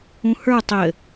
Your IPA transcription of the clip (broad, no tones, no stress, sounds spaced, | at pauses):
ũ h ə˞ tˤ ɘ